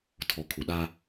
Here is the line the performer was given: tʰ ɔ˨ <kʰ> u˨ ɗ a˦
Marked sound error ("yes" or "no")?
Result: no